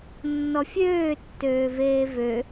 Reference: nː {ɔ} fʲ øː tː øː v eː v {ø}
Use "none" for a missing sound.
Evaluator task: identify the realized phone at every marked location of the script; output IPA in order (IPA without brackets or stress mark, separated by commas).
ɔ, ø